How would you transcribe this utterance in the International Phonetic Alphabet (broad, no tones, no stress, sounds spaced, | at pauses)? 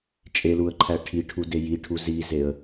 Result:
t͡ʃʼ e l u ə̯ ǃʰ æ ʈʰ i ʈʰ u d e j i ʈʰ u z i z e ə̯